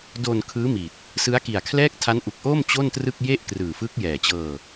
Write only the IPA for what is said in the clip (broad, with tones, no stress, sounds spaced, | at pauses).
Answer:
d o˧ n kʰ ɯː˦˥ m i˨˩ t̚ | s ɯ˦˥ a̯ k i˨˩ a̯ kʰ l ɛː˥˩ k̚ tʰ a˦˥ n ʔ u˨˩ k̚ ʔ oː˥˩ m t͡ɕ o˥˩ n t r ɯ˥˩ k̚ j e˥˩ ʔ k r ɯː˨˩ f ɯ˦˥ k̚ j ɛː˨˩ t͡ɕ ɤː˧